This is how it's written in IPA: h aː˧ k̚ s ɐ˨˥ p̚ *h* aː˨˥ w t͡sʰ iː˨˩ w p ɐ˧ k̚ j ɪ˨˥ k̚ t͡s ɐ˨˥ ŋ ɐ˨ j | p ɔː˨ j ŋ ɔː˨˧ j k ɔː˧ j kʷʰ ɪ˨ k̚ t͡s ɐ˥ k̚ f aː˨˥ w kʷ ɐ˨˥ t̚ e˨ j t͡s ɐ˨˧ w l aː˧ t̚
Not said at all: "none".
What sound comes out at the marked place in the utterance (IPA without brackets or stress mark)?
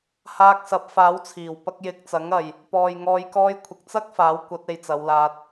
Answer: f